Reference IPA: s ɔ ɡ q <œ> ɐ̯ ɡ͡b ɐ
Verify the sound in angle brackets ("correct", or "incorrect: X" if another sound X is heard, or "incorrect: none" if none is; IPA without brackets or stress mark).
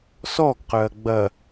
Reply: correct